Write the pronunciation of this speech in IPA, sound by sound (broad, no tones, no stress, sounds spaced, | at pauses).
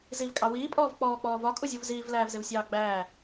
z i v kʼ ɑ w iː pʼ ɔː v k͡p ɔː k͡p ɔː v ɒ kʼ u zʲ u v z iː v l æː v z ɪ v sʲ ɑː ɡ͡b æː